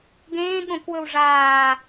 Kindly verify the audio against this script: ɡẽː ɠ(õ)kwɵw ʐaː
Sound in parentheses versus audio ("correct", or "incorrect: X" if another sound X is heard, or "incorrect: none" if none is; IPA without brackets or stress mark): correct